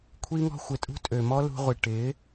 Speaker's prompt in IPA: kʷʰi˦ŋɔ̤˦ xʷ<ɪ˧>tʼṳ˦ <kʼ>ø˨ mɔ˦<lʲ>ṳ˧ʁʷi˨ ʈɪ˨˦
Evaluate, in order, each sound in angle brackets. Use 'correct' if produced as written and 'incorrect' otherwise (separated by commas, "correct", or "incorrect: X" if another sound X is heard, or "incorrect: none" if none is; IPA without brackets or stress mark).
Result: incorrect: ɪ˨, incorrect: tʼ, incorrect: l